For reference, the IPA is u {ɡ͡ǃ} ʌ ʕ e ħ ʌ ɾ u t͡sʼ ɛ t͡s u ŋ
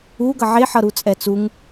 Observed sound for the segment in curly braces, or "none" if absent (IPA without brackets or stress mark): ɡ